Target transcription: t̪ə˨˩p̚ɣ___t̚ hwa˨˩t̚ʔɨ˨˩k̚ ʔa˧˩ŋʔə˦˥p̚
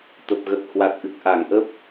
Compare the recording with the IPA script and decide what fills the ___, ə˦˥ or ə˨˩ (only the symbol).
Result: ə˨˩